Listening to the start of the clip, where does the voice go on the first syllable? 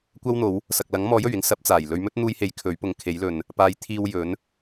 high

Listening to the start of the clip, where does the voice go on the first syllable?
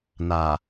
low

